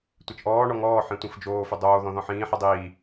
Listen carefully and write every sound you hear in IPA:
tʷ e t͡ʃ ʔ ɔː ɳ ɔ ŋ ɔː ħ ĩ tʷ ĩ f d͡ʒ oː f ʏ dˤ oː ð ɔ̃ ð ɔ̃ ħ ĩː ħ i dˤ iː

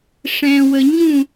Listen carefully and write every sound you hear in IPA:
ʂ ɛ̃˨ w ə˨ ɲ ũ˦˨

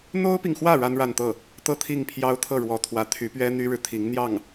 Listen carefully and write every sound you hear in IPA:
n̪ o˥ ʊ̯ p i˨ ŋ x w ä˥˩ ɻ a˥ n ɻ a˥˧ n t̪ ɤ˥˩ | t̪ ɤ˥˧ t̪ʰ i˥˩ ŋ pʰ j ɑ˥ ʊ̯ t̪ʰ ɤ˥˩ ɻ w ɔ˧˥ t̪ʰ w ä˧˥ t̪ʰ y˧˥ p ɥ ɛ˥ n̪ y˥ ɻ ɻ̩˨ t̪ʰ i˧˥ ŋ n̪ j ɑ˥˩ ŋ

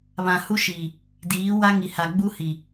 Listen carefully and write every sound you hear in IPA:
β ã˨ h u˦ ʃ iː˨ | d iː˨˦ w a˦ ŋ i˨ h a˨ ɡ͡b u˦ h i˨

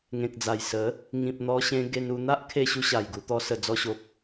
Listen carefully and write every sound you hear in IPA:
ŋ ẽ˨ k̚ d͡z a˨˩ j s ə˨˦ | ŋ ĩ˨ p̚ n̪ ɔ˧ ɕ ẽ˧ ɡ e˧ n u˧ n̪ a˦ ʔ kʰ e˧ ɕ u˧ ɕ a˨˩ j ɡ u˧ t̪ ɔ˧ s ə˨˩ d͡z ɔ˧ ɕ o˨ p̚

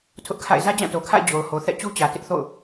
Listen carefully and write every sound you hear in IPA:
tʰ ʊ˦ ʔ kʰ a̰˦˨ ɪ̯ z ä˦ d͡ʑ ã˦˨ t o˨ kʰ a̰˦˨ ɪ̯ d͡ʑ o˨ ʊ̯ h o˨ θ ɛ̰˦˨ t͡ɕ u˦ t͡ɕ ä˨ t ɪ˦ ʔ θ o̰˦˨ ʊ̯

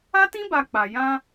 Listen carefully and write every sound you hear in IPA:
a˦ t ĩ˦ b a˧ k͡p a˨ j ã˧

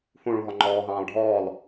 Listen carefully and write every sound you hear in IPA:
h ũ ɭ ũ ɦ ɔ ŋ͡ǃ ɔː ɦ ɑ̃ː lˠ ɖʱ ɔː lˠ

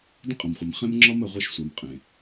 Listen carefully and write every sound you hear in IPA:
d ə̃˦ qʼ ɐ̃˨ m χʷ e˨ m χ ẽ˦ m ŋ͡ǁ ɒ˦ m ə˨ ʁʷ e˦ ʃ sʷ a˨ m qʼ ẽ˨

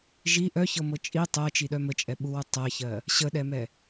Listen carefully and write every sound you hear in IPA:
ʒ i ʔ œ ç ɤ m ɤ t͡ʃʼ i tˤ ɜ t͡ʃ i ɗ œ m ə t͡ʃʼ ɛ ɓ u w u tˤ ɜ ç ɜ | ɕ ə ɗ ɛ m ɛ

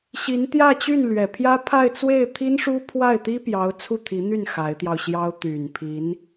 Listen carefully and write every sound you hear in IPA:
ɕ i˧˥ n t̪ j ä˥˧ t͡ɕ y˥˩ n l ɥ ɛ˨˩ pʰ j ä˥ pʰ a˥˧ ɪ̯ t͡s w e˥˩ ɪ̯ t̪ʰ i˥ n ʂ u˥ pʰ w a˥˩ ɪ̯ t̪ i˥ p j ɑ˧˥ ʊ̯ t͡sʰ u˥˩ t̪ʰ i˧˥ n̪ y˥˩ n x a˧˥ ɪ̯ t̪ j ɑ˧ ʊ̯ ɕ j ɑ˥ ʊ̯ t̪ y˨˩ n pʰ i˧˥ n

